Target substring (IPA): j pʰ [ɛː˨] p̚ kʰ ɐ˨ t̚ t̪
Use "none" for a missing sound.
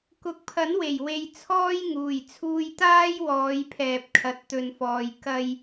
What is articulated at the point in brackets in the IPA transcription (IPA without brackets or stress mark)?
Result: ɛː˨